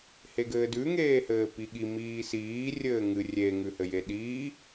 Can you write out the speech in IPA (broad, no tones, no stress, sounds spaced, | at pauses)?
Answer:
h e ɡ ɘː d ʉ ŋ eː h ɘː p i ɠ i m iː s iː rʲ ɘː ŋ ɨ rʲ e ŋ ʉ h ɘ j e ɗ iː